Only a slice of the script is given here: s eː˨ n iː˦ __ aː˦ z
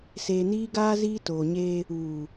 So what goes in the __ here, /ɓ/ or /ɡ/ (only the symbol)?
ɡ